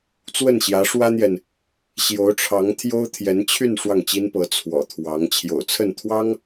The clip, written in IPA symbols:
t͡swə˥˩nɕjä˧˥ʂwä˥n̪jɛ˨n | ɕjo˧˥ʊ̯ʈ͡ʂʰɑ˧˥ŋ t̪ʰjo˥ʊ̯t̪ʰjɛ˧˥nt͡ɕʰy˥˧n ʂwɑ˥˩ŋ t͡ɕi˥npɤ˧˥ t͡sʰwɔ̰˨˩t̪ʰwɑ˧˥ŋ t͡ɕʰjo̰˨˩ʊ̯t͡sʰə˥˩nt̪ʰwɑ˥ŋ

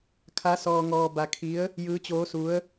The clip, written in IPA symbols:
kʰa˧˥sɔː˧ŋɔː˧ ba˧kʰi˧˥ə̯ | jɯː˧˥t͡ɕoː˧˥su˧˥ə̯

